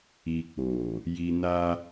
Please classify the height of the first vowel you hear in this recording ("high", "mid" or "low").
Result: high